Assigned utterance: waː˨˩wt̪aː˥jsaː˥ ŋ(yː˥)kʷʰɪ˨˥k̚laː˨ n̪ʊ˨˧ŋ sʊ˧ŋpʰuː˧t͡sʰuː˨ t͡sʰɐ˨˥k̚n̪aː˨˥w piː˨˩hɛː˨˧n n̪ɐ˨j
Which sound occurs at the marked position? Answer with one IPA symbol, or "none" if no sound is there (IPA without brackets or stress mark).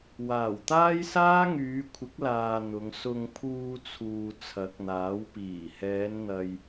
yː˨˧